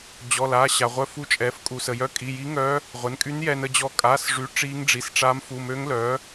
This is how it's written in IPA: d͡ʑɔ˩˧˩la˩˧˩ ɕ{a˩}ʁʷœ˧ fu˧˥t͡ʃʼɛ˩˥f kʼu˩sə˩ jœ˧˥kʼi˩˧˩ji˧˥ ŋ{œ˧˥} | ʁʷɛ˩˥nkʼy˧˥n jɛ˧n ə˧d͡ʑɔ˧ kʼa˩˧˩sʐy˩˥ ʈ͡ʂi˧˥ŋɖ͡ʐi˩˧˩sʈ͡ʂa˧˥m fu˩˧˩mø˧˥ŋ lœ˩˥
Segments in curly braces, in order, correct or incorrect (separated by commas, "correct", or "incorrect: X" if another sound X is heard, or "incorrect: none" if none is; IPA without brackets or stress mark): correct, correct